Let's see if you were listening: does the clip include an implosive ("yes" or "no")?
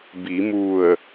no